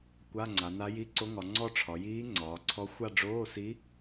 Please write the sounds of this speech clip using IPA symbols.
kʷ a˧˥˧ ŋ͡ǀ a˩˧ n a˧˥ j i˧˥˧ ǀ o˧˥ ŋ ɒ˩˧ ŋ͡ǀ ɔ˥˧ ʈ͡ʂʰ ɒ˩˧ j iː˧˥ ŋ͡ǀ ɒː˩˧ ǀʰ ɔ˧˥ xʷ a˥˧ ɖ͡ʐ oː˧˥˧ s i˧˥

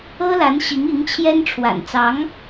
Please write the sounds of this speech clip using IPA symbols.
ɤ˥ l a˧˥ n ɕ i˧˥ ŋ i˧˥ ŋ t͡ɕʰ j ɛ˥ n ʈ͡ʂʰ w a̰˨˩ n t͡s ɑ˧˥ ŋ

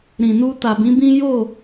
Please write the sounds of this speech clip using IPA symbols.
ɾ ĩ˨ n u˧ t a˨ b ĩ˨˦ b ĩ˦ j o˦˨

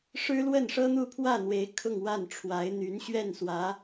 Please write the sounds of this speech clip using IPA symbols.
ʂ ɻ̩˥ l w ə˥˩ n ʂ ɤ˥ n̪ u˥˧ pʰ w ä˥˩ n̪ w e˧˥ ɪ̯ kʰ ʊ˥˧ ŋ w a˥˩ n ʈ͡ʂʰ w a˧˥ ɪ̯ n̪ y˧˥ n ɕ ɥ ɛ˥˩ n s w ä˧˥

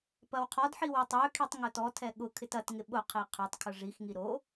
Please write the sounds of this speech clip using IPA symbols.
p ɐ w qʰ ɔ d ħ i w ʊ tˤ ø kʰ i tˤ ŋ ʊ t ɔ tʰ ɛ ɠ ʊ kʰ ɪ t ɐ t ŋ ɪ ɓ ʊ qʰ i qʰ ʊ tˤ kʰ ʊ ʐ i x ŋ i ɾ o

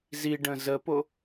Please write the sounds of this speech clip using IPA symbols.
z i ɖ ə̃ z ə p o

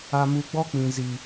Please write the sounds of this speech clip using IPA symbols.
a˧ m u˧ ɡ͡b ɔ˦ k͡p ĩ˨ z i˨

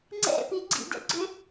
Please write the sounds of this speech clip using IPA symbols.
ŋ͡ǀ ɛ̰ p i ɡ͡ǀ ḭ d ɛ̰ ɡ͡ǀ ʏ

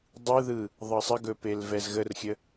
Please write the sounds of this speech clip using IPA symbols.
dˤ ɯ ð ɯ | ðˤ ɤ sˤ ə ɡ ɵ p e l v ɛ z ɣ ə r xʲ ə

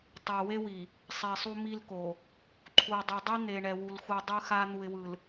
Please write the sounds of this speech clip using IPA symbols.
tˤ ɛ˨ w e˦ w i˨ | sˤ i˨ sˤ u˦ m i˦ l k o˨ | ǃʰ u˨ ɪ̯ dˤ u˨ dˤ i˦ n̪ e˨ ɳ ɛ˨ w u˨ l x u˨ dˤ ɯ˦ x a˦ n̪ u˨ ɪ̯ w ɯ˨ l

